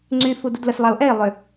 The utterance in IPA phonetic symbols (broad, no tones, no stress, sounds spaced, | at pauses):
ŋ͡ǀ y f u d u d l ə s lˠ a ʊ̯ ʔ ɛ ɪ̯ lˠ ø